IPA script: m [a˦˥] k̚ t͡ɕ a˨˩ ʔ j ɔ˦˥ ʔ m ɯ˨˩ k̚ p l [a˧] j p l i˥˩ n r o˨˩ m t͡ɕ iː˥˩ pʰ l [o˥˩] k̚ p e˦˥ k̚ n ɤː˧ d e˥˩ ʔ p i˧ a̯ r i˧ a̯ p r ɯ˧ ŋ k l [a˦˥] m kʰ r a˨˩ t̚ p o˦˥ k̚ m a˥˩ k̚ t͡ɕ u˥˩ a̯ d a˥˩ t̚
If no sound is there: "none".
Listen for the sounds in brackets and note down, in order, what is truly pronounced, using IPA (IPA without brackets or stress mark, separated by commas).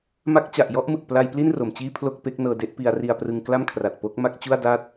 a˦˥, a˧, o˥˩, a˥˩